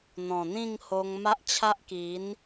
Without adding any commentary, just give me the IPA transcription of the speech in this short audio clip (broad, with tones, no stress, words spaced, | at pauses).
n̪ɔ̃˨˩n̪ĩ˥˧ŋho˧ŋ ma˦ʔt͡ɕʰa˦ʔki˨˦n